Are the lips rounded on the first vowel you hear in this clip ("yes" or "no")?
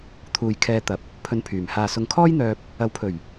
yes